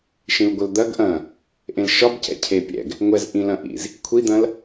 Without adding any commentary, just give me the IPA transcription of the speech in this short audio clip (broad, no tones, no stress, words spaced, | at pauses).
ʃĩlɡʷəld̪ɐɡ ʔɐ̃ | ʔẽlʃɒbcɛ̰ cʰepʲɛ̰ɡ | ŋʷɛzʔĩlɐ̃ʔḭz | kʷʰid̪ɐ̃l